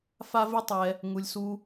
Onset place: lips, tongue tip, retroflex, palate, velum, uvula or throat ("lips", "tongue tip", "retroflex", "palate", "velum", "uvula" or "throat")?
lips